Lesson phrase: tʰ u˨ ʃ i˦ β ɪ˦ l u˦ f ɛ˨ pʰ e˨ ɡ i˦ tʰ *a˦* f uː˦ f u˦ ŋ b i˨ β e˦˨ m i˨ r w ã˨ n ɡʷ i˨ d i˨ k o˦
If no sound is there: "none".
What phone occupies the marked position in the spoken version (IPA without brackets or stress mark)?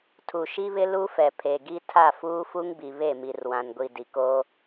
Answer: a˦˨